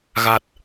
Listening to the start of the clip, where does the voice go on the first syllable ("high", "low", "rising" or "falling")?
low